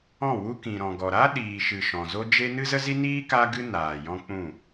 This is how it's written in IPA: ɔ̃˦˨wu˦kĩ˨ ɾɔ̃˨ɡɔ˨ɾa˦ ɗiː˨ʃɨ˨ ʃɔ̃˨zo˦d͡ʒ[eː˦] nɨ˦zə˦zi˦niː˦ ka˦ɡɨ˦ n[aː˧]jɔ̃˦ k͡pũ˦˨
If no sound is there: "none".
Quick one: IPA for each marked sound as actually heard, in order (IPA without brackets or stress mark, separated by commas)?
e˦, aː˨